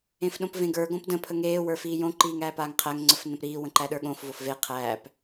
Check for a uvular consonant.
present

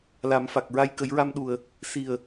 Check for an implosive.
present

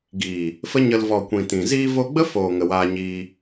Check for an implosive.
absent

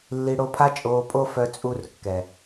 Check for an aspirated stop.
present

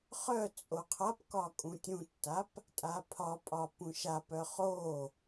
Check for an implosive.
absent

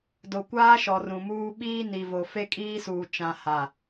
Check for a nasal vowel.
present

